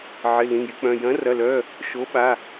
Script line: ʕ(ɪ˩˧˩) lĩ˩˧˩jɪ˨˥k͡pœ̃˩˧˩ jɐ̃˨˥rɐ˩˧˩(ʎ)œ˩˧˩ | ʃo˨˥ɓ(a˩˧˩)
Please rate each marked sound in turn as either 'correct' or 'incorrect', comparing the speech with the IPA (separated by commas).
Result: correct, incorrect, correct